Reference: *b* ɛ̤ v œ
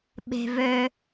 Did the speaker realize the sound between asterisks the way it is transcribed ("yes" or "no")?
no